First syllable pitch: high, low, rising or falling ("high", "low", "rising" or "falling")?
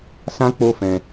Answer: high